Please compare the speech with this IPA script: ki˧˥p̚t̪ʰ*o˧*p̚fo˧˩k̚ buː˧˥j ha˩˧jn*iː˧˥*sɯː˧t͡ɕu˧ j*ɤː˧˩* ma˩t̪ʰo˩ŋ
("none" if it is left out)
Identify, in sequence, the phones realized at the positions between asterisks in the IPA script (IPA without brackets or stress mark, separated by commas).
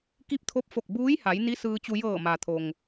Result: o˧˥, i˧˥, ɤː˧˩